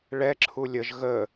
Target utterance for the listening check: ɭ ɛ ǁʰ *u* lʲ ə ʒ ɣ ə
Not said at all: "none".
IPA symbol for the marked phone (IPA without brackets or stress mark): u